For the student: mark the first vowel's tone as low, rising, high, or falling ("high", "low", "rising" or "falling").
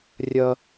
high